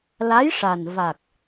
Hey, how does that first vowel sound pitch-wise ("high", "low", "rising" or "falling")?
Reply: rising